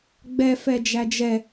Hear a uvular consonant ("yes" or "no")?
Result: no